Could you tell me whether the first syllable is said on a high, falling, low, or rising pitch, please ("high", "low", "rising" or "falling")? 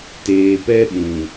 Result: low